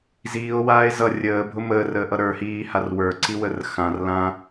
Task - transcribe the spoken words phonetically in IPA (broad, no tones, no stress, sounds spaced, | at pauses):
z iː o̯ w aː e̯ z ʌ rʲ əː bʱ ʊ m əː r əː ʔ ʌ ɾ ə˞ h iː h a r w ə˞ ǀ i w ə r x ã r l ã